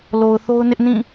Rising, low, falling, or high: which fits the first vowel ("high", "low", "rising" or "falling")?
low